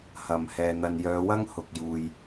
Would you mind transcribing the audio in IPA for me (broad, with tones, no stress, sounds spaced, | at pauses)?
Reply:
h ɐ˨ m h ɛː˨ n̪ ɐ˨ n j œː˨˧ w ɐ˥ ŋ h ʊ˨ k̚ j uː˨ j